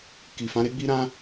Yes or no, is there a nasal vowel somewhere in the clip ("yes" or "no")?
yes